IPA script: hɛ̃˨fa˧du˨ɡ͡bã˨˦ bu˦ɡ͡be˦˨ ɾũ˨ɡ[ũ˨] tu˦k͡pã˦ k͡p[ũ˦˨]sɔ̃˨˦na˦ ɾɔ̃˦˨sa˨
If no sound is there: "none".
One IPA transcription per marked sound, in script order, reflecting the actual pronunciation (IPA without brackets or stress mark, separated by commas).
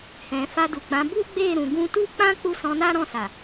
ũ˧, u˦˨